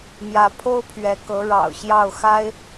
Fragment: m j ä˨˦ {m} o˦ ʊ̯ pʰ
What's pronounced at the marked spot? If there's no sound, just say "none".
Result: pʰ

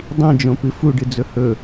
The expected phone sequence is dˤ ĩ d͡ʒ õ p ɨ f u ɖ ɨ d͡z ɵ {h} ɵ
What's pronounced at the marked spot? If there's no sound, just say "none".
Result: h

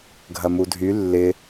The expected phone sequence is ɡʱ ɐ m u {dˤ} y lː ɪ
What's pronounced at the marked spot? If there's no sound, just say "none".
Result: dʱ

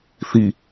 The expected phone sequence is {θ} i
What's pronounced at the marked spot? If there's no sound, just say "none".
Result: θ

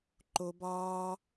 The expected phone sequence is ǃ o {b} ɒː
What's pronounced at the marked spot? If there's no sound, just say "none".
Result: b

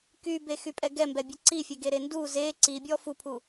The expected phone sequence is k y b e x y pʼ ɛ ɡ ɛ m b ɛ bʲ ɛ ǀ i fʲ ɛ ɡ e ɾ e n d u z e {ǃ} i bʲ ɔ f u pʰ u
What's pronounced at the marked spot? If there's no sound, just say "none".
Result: ǀ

